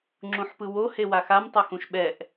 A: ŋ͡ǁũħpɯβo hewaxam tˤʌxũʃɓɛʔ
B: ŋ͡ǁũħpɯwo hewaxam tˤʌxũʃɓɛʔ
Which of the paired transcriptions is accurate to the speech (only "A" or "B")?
B